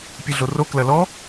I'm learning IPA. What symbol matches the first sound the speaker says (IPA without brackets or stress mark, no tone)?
pʲ